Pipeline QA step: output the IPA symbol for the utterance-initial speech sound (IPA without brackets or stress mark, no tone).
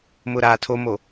m